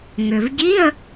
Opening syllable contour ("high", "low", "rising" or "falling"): low